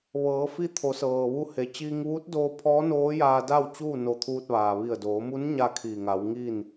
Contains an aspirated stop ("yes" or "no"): yes